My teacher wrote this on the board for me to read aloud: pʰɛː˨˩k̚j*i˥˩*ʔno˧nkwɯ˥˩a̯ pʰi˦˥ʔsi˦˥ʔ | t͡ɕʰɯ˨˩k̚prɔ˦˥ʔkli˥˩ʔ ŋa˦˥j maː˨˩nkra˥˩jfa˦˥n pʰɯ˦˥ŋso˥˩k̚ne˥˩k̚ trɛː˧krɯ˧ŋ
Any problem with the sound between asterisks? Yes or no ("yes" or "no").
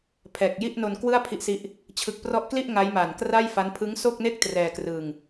no